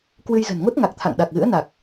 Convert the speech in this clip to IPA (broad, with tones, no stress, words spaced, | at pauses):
kwɨ˧jzə̤˨˩nŋo˦˥t̚ŋa˨˩k̚ t̪ʰa̰˧˨ŋɗa˨˩k̚ɣɨ̰˧˥ə̯na˨˩k̚